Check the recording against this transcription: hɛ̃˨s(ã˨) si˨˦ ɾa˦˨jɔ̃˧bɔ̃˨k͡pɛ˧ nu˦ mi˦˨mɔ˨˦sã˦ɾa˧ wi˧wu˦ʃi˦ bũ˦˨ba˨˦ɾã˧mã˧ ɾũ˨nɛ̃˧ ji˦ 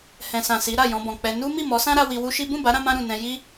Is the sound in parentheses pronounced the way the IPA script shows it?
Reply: yes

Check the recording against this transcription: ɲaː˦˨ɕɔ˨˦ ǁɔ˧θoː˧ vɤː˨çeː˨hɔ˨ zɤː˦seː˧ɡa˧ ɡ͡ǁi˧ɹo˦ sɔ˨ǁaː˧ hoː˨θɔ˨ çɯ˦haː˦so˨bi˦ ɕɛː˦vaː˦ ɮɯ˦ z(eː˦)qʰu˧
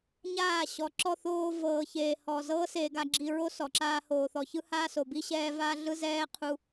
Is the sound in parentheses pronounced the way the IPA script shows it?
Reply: no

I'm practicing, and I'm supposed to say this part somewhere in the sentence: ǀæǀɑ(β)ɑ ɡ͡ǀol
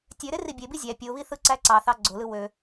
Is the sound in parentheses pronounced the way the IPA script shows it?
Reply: no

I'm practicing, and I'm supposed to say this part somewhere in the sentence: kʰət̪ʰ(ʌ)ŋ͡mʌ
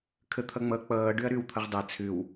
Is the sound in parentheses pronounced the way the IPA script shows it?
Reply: yes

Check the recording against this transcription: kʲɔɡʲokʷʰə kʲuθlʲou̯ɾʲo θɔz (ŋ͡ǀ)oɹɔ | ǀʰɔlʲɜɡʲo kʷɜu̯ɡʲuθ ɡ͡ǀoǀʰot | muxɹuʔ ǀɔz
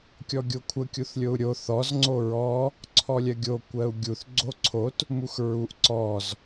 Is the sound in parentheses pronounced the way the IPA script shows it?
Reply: yes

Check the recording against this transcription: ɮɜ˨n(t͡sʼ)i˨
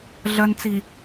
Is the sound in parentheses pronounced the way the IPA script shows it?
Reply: no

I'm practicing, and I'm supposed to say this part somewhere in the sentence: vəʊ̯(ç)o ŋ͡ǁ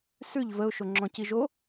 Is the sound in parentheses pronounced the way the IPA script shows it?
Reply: no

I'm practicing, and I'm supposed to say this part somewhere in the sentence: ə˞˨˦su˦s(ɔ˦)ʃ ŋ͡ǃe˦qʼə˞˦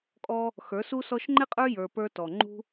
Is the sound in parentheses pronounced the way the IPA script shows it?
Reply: yes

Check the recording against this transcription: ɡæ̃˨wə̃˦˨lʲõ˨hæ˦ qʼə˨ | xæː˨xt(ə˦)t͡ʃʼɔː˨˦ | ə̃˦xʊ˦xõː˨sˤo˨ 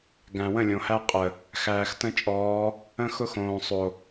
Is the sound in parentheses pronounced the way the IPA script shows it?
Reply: no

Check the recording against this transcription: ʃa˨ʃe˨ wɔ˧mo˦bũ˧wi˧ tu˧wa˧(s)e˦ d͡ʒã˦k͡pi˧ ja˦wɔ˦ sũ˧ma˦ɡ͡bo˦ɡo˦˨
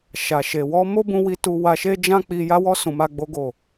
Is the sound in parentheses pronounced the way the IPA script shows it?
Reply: no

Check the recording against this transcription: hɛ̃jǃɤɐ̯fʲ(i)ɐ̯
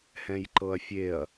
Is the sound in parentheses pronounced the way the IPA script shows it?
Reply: no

